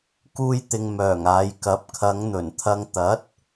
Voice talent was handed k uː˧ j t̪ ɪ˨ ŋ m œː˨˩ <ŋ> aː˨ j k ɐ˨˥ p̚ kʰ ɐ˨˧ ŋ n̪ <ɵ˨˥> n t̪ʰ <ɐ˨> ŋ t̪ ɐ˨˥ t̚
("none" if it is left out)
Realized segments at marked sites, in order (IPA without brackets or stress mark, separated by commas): ŋ, ɵ˨˩, ɐ˧